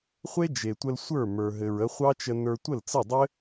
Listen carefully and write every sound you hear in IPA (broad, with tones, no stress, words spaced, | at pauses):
χʷe˦d͡ʒe˨tʷə˧l sʷə˞˦˨mə˞˨ɦɘ˨ɹ ə˧χʷɑ˦t͡ʃə˧ nə˞˧tʷə˦˨lt͡sə˦˨dˤɘ˦